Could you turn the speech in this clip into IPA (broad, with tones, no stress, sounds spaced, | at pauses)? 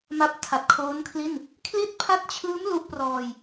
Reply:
m a˥˩ p̚ tʰ a˨˩ t̚ kʰ oː˦˥ n kʰ l i˥˩ n | kʰ l i˥˩ t̚ pʰ a˥˩ t̚ t͡ɕʰ ɯː˦˥ m l u˦˥ ʔ p r ɔː˧ j